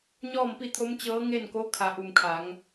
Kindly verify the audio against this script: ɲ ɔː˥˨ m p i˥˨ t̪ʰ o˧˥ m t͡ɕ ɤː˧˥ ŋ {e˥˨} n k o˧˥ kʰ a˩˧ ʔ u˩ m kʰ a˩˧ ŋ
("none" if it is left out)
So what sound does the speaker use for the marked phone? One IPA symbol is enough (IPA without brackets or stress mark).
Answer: e˥˨